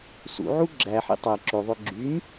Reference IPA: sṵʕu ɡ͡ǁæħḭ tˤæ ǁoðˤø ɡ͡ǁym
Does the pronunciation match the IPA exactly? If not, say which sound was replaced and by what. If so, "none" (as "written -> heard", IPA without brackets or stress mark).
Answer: none